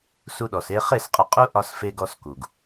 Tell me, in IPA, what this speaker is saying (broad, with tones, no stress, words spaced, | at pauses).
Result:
su˧ɗɔ˨s e˧ χe˦˨sqʼɐ˧qʼu˦ ʔɒ˧sfe˧ ɡɔ˧s ku˨ɡ